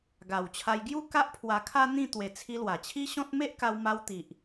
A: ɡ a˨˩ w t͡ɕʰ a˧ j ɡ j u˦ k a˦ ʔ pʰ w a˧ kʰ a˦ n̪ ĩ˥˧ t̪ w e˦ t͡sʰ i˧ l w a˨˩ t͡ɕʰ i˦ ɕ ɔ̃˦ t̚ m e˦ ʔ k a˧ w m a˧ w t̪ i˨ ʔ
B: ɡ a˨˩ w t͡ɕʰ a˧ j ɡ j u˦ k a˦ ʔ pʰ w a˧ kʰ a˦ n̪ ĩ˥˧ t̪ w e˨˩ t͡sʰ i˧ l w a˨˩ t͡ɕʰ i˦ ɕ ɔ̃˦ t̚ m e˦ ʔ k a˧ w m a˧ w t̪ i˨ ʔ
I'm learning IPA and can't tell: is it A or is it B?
B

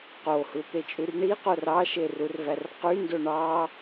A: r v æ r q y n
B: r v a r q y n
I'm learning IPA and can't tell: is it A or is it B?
A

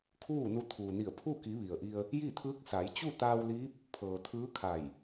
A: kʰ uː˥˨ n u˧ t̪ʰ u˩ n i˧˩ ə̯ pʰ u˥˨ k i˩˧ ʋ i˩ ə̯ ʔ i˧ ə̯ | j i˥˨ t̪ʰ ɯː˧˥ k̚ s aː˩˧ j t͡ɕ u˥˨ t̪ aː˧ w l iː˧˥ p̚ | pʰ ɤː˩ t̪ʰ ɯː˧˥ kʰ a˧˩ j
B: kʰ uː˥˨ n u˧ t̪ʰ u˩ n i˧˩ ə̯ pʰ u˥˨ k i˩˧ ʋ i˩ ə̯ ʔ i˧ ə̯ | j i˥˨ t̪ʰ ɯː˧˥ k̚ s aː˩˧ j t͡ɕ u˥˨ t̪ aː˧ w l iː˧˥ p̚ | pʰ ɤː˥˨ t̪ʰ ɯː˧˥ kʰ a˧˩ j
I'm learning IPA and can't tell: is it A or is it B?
A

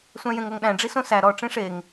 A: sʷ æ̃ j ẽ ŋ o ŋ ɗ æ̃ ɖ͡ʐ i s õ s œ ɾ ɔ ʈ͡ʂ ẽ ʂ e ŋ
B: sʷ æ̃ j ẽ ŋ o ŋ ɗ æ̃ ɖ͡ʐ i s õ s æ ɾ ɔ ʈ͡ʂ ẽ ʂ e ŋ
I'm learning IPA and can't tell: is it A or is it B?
B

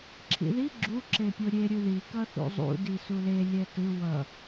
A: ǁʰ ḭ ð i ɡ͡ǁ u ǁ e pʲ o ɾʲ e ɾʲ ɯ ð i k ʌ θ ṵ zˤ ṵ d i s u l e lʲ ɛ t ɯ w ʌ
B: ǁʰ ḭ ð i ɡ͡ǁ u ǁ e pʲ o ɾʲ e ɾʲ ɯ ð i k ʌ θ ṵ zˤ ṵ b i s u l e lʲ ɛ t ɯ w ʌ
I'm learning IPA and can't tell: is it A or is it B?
A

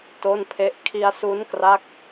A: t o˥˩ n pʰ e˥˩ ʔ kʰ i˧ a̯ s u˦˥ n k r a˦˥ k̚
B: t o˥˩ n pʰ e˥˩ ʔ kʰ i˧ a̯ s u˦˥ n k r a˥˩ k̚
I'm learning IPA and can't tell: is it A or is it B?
A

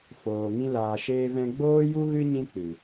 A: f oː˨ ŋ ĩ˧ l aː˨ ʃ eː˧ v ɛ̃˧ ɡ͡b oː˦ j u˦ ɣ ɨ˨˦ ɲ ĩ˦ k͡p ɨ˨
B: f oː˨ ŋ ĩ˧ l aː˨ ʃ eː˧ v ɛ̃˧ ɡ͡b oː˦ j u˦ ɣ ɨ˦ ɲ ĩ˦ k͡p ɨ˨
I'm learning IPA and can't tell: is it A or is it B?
B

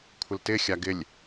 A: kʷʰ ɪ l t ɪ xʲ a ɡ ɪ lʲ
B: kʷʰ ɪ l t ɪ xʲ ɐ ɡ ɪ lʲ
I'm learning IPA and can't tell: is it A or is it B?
A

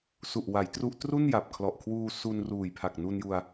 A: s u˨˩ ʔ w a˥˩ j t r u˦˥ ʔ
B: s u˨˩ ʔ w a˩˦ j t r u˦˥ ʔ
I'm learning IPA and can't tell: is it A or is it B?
B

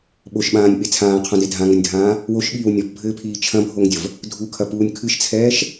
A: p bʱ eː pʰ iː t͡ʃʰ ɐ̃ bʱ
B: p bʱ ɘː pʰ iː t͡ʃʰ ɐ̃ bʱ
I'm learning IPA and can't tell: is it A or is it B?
B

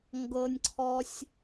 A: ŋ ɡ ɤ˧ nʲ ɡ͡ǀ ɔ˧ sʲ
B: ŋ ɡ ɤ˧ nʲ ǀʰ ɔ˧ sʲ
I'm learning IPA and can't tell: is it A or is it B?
B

